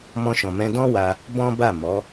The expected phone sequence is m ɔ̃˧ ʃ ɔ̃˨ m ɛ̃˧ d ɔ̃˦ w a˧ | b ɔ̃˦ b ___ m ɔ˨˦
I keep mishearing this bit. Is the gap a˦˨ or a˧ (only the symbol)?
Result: a˦˨